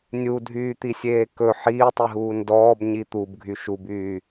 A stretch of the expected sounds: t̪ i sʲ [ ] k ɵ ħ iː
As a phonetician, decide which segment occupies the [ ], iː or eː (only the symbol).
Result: eː